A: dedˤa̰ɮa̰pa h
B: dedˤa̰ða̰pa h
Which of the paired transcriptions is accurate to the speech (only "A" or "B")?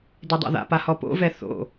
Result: B